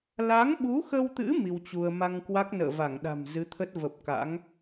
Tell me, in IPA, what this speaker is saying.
l a˨˦ ŋ ɓ u˨˦ x ə˧ w t̪ ɨ̰˧˥ m i˧ w t͡ɕ u˧ ə̯ m a˧ ŋ k w a˦˥ k̚ n ə̰ː˧˨ v a˧˩ ŋ ɗ a̤˨˩ m z ɨ˨˦ t̪ʰ ə˦˥ t̚ v ə˨˩ p̚ k a̰˧˥ ŋ

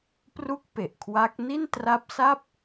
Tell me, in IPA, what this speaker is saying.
p r u˥˩ k̚ p e˨˩ ʔ kʰ w a˦˥ k̚ n i˥˩ n t r a˦˥ p̚ s a˥˩ p̚

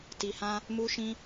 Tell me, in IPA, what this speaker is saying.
t i˧ h ã˦ | m u˦ ʃ ĩ˦

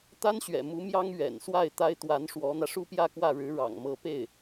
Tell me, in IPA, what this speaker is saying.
t̪ a˥ n ɕ ɥ ɛ̰˨˩ m u˧˥ m j ɑ˥ ŋ ɥ ɛ̰˨˩ n s w a˥˩ ɪ̯ t̪ a˥ ɪ̯ t̪ w a˧˥ n ʂ w ɔ˧˥ n̪ ä˧ ʂ u˥˧ p j ä˥˧ k w ä˥˩ ɻ ɻ̩˧˥ ɻ ɑ̰˨˩ ŋ m ɤ˧˥ p e˥˩ ɪ̯

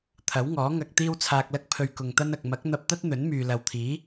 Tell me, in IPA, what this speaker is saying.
t̪ʰ ɐ˨˥ w ŋ ɔː˨˥ ŋ ɐ˧ k̚ t̪ iː˥ w t͡sʰ aː˧ k̚ l ɐ˥ k̚ pʰ ɵ˧ ɥ k ʊ˨ ŋ t̪ ɐ˥ n ɐ˨ k̚ m ɐ˨˥ k̚ n̪ ɐ˧ p̚ t̪ ɐ˥ t̚ n̪ ɵ˨˥ n m yː˨ l ɐ˨ w t̪ʰ iː˨˥

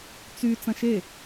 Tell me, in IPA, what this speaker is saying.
t͡s y t͡s ɐ̃ ʃ e

